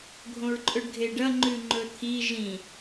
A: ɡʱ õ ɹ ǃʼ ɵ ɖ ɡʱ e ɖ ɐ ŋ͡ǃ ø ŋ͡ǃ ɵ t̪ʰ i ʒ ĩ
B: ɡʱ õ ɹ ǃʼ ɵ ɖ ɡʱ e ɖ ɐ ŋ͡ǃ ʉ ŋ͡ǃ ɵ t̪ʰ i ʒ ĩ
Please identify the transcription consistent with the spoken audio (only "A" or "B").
B